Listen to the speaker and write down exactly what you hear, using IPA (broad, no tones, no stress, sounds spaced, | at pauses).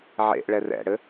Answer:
ʕ ḛ ʔ ɭ ɛ r ɛ̰ ɽ ɘ